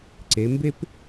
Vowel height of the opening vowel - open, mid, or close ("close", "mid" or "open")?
mid